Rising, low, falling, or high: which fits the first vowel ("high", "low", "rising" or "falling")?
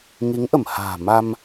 rising